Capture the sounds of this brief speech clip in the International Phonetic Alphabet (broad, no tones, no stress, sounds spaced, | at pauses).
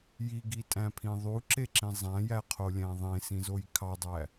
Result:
j i ɡ i tʼ æ̃ pʰ ĩ ðˤ u ǁ e ǁ ĩ zˤ æ̃ j æ qʰ o lʲ æ̃ ðˤ ẽ s ĩ z o j kʰ ɑ dˤ æ